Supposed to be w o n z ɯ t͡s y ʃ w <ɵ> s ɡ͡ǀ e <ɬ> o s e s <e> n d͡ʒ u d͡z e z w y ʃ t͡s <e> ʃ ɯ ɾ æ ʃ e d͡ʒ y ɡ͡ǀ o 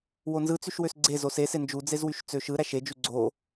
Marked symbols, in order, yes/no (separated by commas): no, no, yes, no